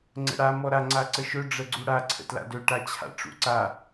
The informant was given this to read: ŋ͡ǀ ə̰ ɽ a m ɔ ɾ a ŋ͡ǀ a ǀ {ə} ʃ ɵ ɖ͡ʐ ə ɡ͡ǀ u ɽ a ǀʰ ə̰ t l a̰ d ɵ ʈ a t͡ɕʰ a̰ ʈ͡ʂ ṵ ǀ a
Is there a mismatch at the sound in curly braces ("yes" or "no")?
no